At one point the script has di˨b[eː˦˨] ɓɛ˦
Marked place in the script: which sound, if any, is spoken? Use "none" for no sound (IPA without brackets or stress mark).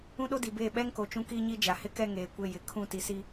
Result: eː˦˨